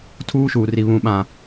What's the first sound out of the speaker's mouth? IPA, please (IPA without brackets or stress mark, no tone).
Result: tʰ